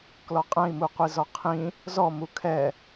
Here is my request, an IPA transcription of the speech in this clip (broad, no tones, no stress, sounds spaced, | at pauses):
k l ɔ qʼ ɛ̃ i̯ m u qʷ i z ɔ qʰ ĩ | z ɔ m u kʰ ɛ